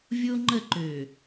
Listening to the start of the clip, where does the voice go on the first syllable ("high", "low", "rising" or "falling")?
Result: high